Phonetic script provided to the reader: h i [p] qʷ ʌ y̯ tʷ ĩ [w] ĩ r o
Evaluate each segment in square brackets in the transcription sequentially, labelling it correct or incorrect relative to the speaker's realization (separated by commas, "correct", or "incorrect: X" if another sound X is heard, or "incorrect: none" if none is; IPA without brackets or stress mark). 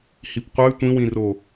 correct, correct